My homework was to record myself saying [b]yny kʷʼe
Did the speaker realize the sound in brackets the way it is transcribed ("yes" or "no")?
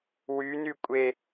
no